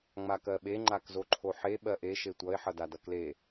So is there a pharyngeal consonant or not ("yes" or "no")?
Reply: yes